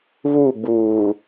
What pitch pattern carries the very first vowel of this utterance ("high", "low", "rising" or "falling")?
falling